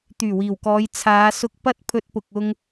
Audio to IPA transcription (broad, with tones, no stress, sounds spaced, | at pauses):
t̪ yː˨˩ w iː˨˩ w k ɔː˨˧ j t͡sʰ aː˨˧ s ʊ˧ k̚ p ɐ˥ t̚ pʰ ɵ˧ t̚ p ʊ˨ k̚ ʊ˧ ŋ